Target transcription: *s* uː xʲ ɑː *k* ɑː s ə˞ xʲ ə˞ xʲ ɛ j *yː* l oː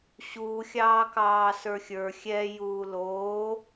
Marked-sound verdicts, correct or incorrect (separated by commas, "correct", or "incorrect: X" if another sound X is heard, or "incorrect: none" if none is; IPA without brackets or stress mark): incorrect: ɕ, correct, incorrect: uː